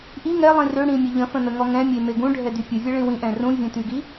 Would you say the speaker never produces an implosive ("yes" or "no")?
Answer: yes